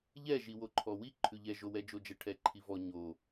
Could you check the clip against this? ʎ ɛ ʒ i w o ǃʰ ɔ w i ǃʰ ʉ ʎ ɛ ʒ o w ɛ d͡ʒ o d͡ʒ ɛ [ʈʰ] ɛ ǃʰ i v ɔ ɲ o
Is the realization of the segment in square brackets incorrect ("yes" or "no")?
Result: no